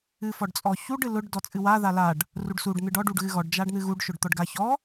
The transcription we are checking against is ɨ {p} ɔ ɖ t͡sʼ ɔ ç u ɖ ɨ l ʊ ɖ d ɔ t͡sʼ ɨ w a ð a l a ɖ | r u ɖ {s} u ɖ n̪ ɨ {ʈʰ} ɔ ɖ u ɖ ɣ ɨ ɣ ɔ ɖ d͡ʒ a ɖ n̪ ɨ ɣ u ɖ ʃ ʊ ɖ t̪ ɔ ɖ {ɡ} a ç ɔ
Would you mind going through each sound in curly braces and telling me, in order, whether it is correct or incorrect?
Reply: incorrect, correct, incorrect, correct

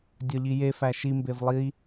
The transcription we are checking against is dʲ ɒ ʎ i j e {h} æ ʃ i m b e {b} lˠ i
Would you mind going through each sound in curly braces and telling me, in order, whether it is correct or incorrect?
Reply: incorrect, incorrect

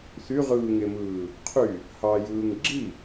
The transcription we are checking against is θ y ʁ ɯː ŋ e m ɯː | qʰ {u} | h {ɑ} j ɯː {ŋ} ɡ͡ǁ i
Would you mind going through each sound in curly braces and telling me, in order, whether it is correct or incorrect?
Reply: incorrect, correct, correct

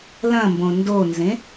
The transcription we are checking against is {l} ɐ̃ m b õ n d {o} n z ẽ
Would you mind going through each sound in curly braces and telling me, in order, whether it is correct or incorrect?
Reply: correct, correct

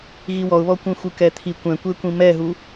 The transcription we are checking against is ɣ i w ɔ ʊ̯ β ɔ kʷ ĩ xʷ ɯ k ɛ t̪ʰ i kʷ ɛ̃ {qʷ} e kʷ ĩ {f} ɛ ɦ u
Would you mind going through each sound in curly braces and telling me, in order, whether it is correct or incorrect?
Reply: incorrect, incorrect

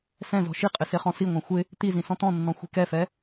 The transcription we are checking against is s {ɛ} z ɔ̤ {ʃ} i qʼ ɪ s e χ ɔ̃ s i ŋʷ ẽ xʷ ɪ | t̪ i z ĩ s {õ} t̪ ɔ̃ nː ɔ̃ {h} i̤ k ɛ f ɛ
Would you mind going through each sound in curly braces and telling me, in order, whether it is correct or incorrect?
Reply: incorrect, correct, incorrect, incorrect

